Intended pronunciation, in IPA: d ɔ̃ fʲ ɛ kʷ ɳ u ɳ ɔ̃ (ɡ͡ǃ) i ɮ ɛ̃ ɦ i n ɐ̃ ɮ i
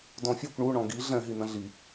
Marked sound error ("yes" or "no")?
yes